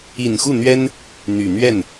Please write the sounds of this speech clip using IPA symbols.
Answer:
i˨˩nxu˥˩n̪ɥɛ˥n | n̪y˨˩ n̪ɥɛ˥˩n

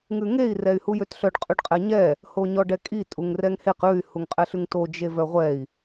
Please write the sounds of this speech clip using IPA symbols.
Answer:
ŋʉŋei̯ rɛy̯hujøtɬœɖ qʼʉɖqʼɛɲɛ | hoɲɔɖɛkʼi tʼuŋrɛŋheq ʉy̯ huŋqʼɛɬʉŋto d͡ʒevœʁʷɛi̯

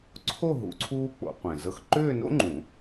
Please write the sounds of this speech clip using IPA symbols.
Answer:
ǀʰo˥˧ ɦṵ˨˦ǀʰuː˥ k͡po̰˨˩˦qʷẽ˨˩zɤ˥˧x ǃʏː˥˧no̰˥ŋ͡ǃũ˨˩˦

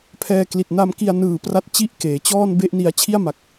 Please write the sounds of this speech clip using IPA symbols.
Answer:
pʰɛː˧kli˨˩t̚ na˧mki˧a̯nɯː˨˩pra˦˥t̚ t͡ɕi˥˩ʔkeː˩˦t͡ɕɔː˥˩n be˥˩ʔni˧a̯ t͡ɕʰi˥˩a̯ma˨˩k̚

